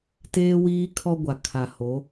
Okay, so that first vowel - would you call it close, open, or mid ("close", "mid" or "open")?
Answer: mid